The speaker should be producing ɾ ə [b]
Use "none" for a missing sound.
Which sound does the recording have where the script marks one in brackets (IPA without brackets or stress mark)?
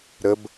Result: b